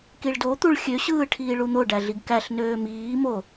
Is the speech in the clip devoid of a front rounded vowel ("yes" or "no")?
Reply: no